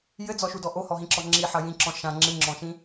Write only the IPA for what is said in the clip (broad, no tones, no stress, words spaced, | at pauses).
jɘd͡zɔʃudɔ ʔohɔɦĩǁɔ ŋ͡ǁiħɐ jĩǁɔ̃ ʃã ŋ͡ǁɨŋ͡ǁɔ̃ʃĩ